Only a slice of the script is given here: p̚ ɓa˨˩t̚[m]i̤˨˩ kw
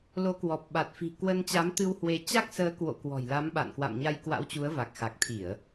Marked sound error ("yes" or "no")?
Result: yes